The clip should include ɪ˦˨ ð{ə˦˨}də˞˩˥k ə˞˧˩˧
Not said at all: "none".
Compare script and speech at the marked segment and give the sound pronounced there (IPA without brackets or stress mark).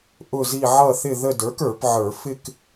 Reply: ə˦˨